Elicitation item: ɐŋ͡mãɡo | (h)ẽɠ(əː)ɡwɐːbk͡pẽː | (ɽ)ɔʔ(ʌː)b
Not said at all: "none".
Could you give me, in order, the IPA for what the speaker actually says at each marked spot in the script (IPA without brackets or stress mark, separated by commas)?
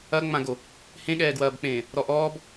h, ɛː, ɾ, ɔː